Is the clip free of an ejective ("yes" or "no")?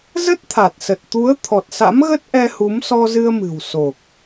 yes